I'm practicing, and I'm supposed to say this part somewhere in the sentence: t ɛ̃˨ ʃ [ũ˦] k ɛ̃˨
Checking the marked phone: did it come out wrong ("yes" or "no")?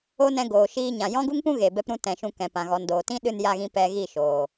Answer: yes